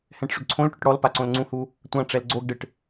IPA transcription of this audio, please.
h ɛ̃ ʈ ʂ ʏ ɡ ǀʰ õ l ʈ ʏ ʈ ɽ ɔ l p a ǀ õ l ŋ͡ǀ ũ h u | tʷ ã ʈ͡ʂ ɛ l ɡ͡ǀ o ɡ ɖ ɪ ʈ

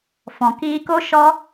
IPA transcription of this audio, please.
f ɔ̃˨ k iː˧ k o˦ ʃ ɔ˦

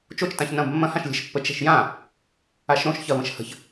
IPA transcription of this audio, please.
t͡ʃ o t͡ʃ t ã ç n ɐ̃ b mː ɐ̃ h ã ʃ lʲ ɛ̤ ʃ pː ə t͡ʃ ɛ̤ ʃ j ã | a ʃ ɾ õ ʃ ç ɐ v ə̃ ʃ h ə̤ ç

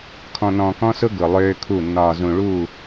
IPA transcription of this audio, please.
kʰ ɔ̃˨ n ɔ̃ː˨ k ɔ̃˦ s ʊ˦ ɡ ʊ˨ lˠ øː˦ kʰ u˦˨ nː ɒː˨ z ũ˨ ɭ u˦˨

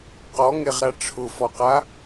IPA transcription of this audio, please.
q ɔ ŋ e ʁ ɾ a ʈ͡ʂʰ ʊ f ɔ q a

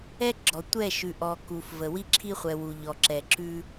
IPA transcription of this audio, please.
ɛ˦ ɡ͡ǁ ɔ˨ tʷ ɛ˦˨ ʃ ʉ˨ ʔ ɔ˨ k u˨ f v ə˨ w i˦ ǁʰ i˦ χʷ ɛ˨ w u˨ ʎ ɔ˨ ǁ ɛ˨ ǁ ʉ˦

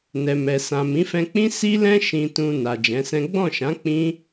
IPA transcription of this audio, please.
n ɛ˨ m ɛ˨ s ã˨ m ĩ˨˦ f ɛ̃˧ k͡p ĩ˦ s i˧ l ɛ̃˧ ʃ ĩ˧ t ũ˧ n a˨ d͡ʒ ɛ̃˨˦ s ɛ̃˦ ɡ͡b ɔ̃˦˨ ʃ ã˨˦ k͡p ĩ˦

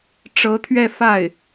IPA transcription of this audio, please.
ʈ͡ʂ ɤ˧˥ t̪ʰ ɥ ɛ˥˧ f a˥˩ ɪ̯

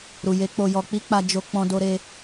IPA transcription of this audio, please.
ɾ u˨ j e˨˦ k͡p o˧ j ɔ˧ k͡p i˦ k͡p a˧ d͡ʒ o˧ k͡p ɔ̃˧ d o˧ ɾ e˧

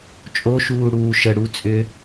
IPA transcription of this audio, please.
t͡ʃʼ o ʃ uː ɽ uː ʃ ə ɽ u t͡sʼ ʏ

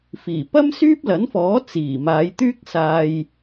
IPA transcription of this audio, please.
f iː˨˩ p ɐ˥ m s yː˥ p̚ l ɐ˨˥ n f ɔː˨˥ t͡s iː˨˩ m aː˨˧ j t̪ yː˥ k̚ s aː˧ j

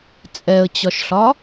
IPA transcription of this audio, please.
t͡sʼ ɛ ə̯ t͡ɕ ɒ ʃ ɬ ɒ

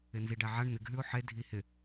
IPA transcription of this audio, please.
ɪ n z i ɖ æ ʕ a ɳ n̪ ɪ ɡ ɦ ʉ ʊ̯ ħ e dʱ i h ɪ

